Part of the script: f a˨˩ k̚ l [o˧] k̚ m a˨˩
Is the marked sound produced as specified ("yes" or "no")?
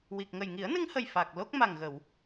no